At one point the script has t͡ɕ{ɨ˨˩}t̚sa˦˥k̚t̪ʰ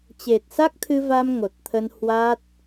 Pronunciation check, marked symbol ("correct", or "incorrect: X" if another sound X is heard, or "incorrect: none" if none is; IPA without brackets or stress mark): incorrect: e˨˩